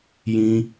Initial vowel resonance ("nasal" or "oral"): nasal